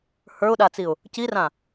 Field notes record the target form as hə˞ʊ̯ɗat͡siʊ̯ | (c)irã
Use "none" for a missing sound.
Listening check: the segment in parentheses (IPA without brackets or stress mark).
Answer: c